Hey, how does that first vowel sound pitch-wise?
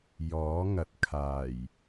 rising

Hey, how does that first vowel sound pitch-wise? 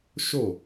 falling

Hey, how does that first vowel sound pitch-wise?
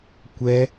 high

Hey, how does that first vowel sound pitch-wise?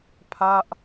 falling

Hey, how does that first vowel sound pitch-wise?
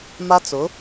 high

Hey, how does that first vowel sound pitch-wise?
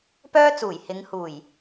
high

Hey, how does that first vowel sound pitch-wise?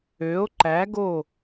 rising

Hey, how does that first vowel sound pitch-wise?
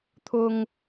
high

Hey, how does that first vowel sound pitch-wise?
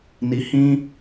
low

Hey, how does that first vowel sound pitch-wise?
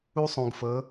high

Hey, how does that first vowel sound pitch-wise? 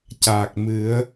low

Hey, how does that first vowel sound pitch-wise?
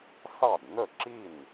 falling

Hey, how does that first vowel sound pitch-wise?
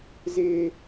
high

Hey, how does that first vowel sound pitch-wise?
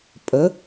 rising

